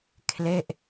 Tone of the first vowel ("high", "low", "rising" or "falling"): falling